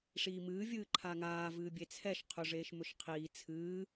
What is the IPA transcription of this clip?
ʂ iː m ɨː vʲ ɨː ǃʰ a ŋ aː v ɨː bʲ e t͡sʰ ɛ ʃ qʰ ɵ ʐ eː ʃ m ɵ ʃ qʰ iː t͡sʰ ɨː

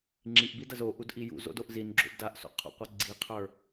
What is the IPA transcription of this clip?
ŋ͡ǁ i ʔ b i d ɐ z o ʔ u d ʔ i j ṵ z o̰ d o ʔ z i n ɡ͡ǁ o̰ b d a ʔ s o̰ qʰ o̰ qʷ ɐ ɡ͡ǀ i qʰ ə˞

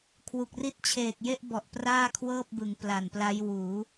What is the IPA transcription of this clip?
kʰ w u˨˩ k̚ r i˦˥ t̚ t͡ɕʰ eː˨˩ k̚ j e˥˩ ʔ b ɔ˨˩ ʔ p r aː˥˩ kʰ w ɤː˥˩ p̚ b ɯ˩˦ ŋ p l a˨˩ n p l a˦˥ j w uː˩˦

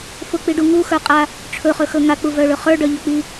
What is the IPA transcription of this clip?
f ʊ k͡p i ɖ u ŋ u x ə˞ qʼ a | ʈ͡ʂʰ ɵ χ ɵ x ɵ ŋ a k͡p u v œ ɭ ɵ χ ə˞ ɖ œ ʎ ɵ k͡p i

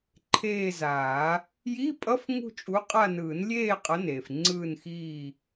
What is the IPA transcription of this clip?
ǃʰ eː˦˨ z aː˨˩˦ | j i˧˥˧ pʼ ʌ˧˥˧ f ŋ ṳ˦˨ t͡ʃʼ u˨˦ qʼ a˦˨ n ɯː˨˩˦ n lʲ eː˦˨ qʼ ʌ˨˦ n eː˩ f ŋ͡ǀ ɯː˦˨ n x iː˦˨

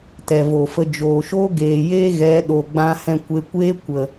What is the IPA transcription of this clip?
t ɛ˨ v o˨ f ə˧ d͡ʒ oː˨ ʃ oː˦ ɡ eː˨ j eː˦ ɣ ɛ˨˦ ɗ o˨ ɡ͡b ã˧ h ɛ̃˧ kʷ e˧ kʷ eː˦ kʷ ə˨

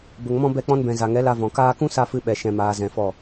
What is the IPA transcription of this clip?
b ə˨ ŋ m ɔ̃˧ b ɛ˧ k͡p ɔ̃˧ n b ɛ̃˨ z a˨ ŋ ɛ˨˦ l a˧ v ɔ̃˨ k aː˧ k ũ˦ s a˧ f ɨ˧ ɓ ɛ˨ ʃ ɛ̃˨ m aː˨ z ɛ̃˨ f ɔ˦˨

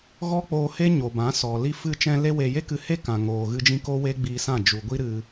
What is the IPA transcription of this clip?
ɣ ɔ˦ k͡p oː˧ h e˦ ɲ o˨ b ã˨˦ s ɔ˨ l i˧ f ɨ˧ t͡ʃ ɛ̃˧ l e˦ w e˧ j e˦ k ɨ˧ h e˦ k ã˨ ŋ oː˨ ɣ ɨ˧ d͡ʒ ĩ˧ k o˦ w e˦ ɡ͡b iː˧ s ã˦˨ d͡ʒ u˨ ɡʷ i˦ ɾ ɨ˧

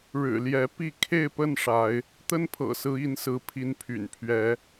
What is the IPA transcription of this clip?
ɻ ɻ̩˨˩ l j ɛ˨˦ p i˥˨ kʰ e˥˨ ɪ̯ p ə˥˨ n ʂ a˨˦ ɪ̯ | t̪ ə˦ n pʰ ɤ̰˨˩ s ɹ̩˨˦ i˨˦ n s ɹ̩˨˦ pʰ i˨˦ n pʰ y̰˨˩ n pʰ ɥ ɛ˨˦

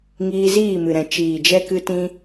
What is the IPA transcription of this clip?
ŋ iː˧ z iː˦˨ m ɨ˨ ɾ ɛ̃˨ t͡ʃ iː˨ d͡ʒ ɛ˧ k ɨ˧ t ĩ˧

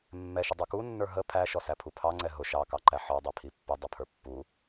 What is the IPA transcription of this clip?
mː ɛ ʃ ə dˤ ə˞ k u nː ə˞ ɦ ə pʰ æ ʃ ɔ s æ pʰ u pʰ ɑ ŋ͡ǀ ɛ ɦ ʊ ʃ ɑ k ɑ ǃ æ ħ ɔ dˤ æ pʰ i pː ə dˤ ʌ pʰ ə˞ pː u

